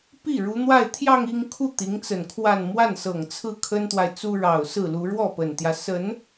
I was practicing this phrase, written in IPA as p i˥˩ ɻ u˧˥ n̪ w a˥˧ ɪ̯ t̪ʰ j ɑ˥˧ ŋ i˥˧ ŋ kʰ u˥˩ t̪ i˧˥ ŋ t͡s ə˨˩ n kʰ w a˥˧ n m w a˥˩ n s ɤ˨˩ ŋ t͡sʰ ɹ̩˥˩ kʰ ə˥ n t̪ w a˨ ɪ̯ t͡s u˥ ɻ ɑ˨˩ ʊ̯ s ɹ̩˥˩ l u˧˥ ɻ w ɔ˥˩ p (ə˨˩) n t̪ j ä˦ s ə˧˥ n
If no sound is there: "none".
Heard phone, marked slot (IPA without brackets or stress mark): ə˨˩